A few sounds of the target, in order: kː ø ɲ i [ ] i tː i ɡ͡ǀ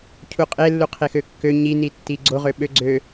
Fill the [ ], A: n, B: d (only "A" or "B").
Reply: A